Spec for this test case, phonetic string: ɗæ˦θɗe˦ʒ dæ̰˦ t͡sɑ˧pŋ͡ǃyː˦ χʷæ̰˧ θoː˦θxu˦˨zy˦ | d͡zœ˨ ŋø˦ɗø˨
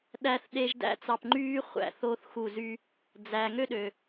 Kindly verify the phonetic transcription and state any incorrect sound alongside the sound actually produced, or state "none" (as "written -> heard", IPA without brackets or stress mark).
œ˨ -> æ˨